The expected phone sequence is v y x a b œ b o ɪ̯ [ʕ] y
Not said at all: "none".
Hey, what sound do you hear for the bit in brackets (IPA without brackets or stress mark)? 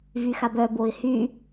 h